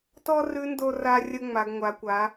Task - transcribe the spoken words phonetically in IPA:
tɔ˥rʉ˧˥ ndo˧ra˧rʲə˧ ŋ͡ma˩˧ɡŋʷa˩˧kʷa˩˧

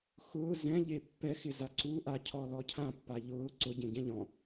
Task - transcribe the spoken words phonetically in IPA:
xʊː zɛ̃ʎe pːɛxɪza ǀu ʔacʰɔ lɔcʰã pːaʎʊː ǀʊɟẽɟɛ̃ ʎɔ̃

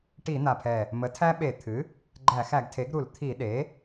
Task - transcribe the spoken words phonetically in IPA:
ʈi˧˩˧n̪a˨˩pʰɛ˨˩ | mə˩˥tʰæ˦ɓe˧˩˧ t̪ʰɨ˩˥ | ɡ͡ǃæ˧˩˧xæ˧˩˧ɡtʰe˩˥ɡɾu˧˩˧l t̪ʰi˧˩˧ɗe˩˥

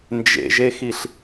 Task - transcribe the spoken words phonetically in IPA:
nd͡ʒḛʒexiɬ

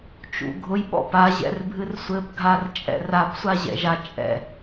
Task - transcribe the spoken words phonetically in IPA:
t͡ʃṵɡʱʊj ɓɔ̰paʑɛ̰r bʱɨrsʷɘpɡʱar t͡ʃʼɛ̰rapsʷaʑɛ̰ ʒat͡ʃʼɛ̰

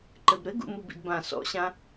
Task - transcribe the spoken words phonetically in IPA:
ǃɘbɾɘɡṵ mubḭdbã sɔ̰ɕã

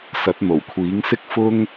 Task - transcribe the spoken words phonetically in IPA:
sɐ˨˥t̚n̪o˨˩wkʷʰiː˨˥ŋsɪ˥k̚ fʊ˥ŋ

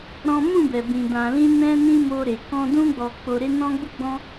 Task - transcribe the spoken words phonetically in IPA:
ɾɔ̃˦ mũ˦˨bɛ˨bĩ˨ dã˨lĩ˧ nɛ̃˦nĩ˦mo˧ɾe˨ kɔ̃˧dũ˦ ɡ͡bɔ˧ k͡po˧ɾe˦ nɔ̃˦ɡ͡bu˦ɡ͡bɔ̃˦

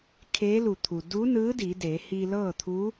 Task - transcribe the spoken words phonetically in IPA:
kʰeː˧˥lu˧˩ t̪ʰu˩ du˧˥nɯː˧˥ di˩˧de˩˧ hi˧lɤː˥˨t̪ʰu˧˥

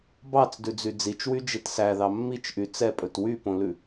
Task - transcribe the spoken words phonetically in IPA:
bɑt͡sdʉd͡zy d͡zit͡ʃwyd͡ʒet sæðɑ mːit͡ʃʔy t͡sɛpʼɵt wypõlʉ

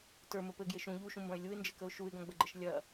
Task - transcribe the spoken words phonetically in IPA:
tə˞mə pɘɡjeʃ ũ ʎuʃũmbɐ̃ɪ̯ lʲuɪ̯nd͡ʒɘkəʊ̯ ʃuɪ̯ɡɐ̃ɡ͡bəɡ͡ǃəʃ lʲɐ

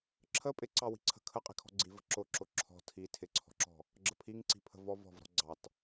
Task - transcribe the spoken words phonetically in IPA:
ǁʰə pʼɪǀɑwi̤ǀʰə̤ kʰəqʼi̤kʰɔ̤ ɡ͡ǀivə̤ ǁʊ ǁʊǁʰɔ̤ tʰi tʰɪǀʰɔ̤ǁɔ̤ | ɡ͡ǁəpʰiŋǀi̤pʰə̤ vɔv ɔ̤vɾɔ̤ ɡ͡ǀɑt

